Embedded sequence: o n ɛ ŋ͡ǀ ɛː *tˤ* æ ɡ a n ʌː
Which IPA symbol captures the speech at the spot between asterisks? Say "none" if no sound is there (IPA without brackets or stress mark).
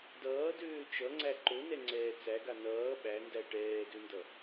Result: t͡s